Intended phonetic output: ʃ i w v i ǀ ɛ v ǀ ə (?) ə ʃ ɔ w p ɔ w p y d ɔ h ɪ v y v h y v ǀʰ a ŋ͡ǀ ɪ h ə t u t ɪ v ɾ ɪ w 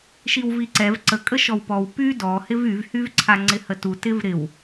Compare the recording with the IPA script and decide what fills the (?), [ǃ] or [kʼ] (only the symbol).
kʼ